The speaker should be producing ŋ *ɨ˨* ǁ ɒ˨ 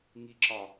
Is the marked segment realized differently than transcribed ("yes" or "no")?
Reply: yes